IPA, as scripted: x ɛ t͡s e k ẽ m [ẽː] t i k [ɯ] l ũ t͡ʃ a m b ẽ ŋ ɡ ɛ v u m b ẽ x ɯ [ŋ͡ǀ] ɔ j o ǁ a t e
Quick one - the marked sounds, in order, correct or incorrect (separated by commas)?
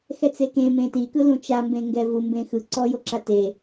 incorrect, correct, incorrect